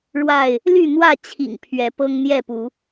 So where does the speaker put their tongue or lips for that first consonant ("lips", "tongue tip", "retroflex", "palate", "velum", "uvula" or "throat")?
retroflex